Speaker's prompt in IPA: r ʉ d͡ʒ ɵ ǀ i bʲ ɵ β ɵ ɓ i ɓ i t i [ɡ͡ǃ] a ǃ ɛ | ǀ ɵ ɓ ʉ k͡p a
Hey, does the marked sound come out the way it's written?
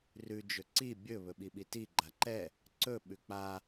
yes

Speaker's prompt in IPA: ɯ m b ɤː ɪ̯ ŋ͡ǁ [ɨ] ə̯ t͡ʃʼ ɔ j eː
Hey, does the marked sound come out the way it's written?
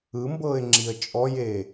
no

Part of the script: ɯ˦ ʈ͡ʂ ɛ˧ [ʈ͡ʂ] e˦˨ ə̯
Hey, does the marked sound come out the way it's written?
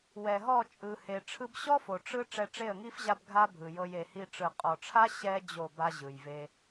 yes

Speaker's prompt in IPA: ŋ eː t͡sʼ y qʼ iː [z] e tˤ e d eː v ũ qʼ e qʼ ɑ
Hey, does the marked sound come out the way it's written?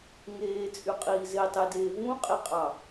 yes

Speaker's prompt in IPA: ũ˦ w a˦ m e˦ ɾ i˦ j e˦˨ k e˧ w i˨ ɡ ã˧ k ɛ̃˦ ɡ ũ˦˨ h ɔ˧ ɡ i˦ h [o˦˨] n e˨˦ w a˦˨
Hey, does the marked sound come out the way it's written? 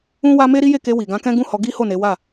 yes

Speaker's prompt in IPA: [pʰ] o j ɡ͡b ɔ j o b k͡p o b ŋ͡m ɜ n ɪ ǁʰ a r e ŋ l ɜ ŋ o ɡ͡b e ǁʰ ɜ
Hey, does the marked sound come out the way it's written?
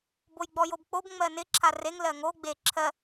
no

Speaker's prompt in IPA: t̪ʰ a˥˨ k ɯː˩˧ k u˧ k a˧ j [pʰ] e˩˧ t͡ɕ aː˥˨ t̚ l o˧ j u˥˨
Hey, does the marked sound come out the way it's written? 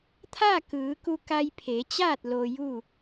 yes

